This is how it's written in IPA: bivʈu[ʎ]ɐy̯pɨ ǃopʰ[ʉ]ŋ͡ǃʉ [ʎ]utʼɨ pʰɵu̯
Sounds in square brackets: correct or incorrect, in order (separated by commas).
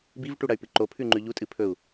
incorrect, correct, correct